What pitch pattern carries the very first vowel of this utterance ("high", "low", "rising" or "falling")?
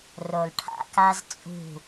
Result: low